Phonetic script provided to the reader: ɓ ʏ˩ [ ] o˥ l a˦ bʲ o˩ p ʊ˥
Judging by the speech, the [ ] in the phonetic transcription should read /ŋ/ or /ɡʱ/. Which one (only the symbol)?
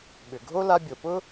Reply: ɡʱ